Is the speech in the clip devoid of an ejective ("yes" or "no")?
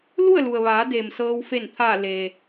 yes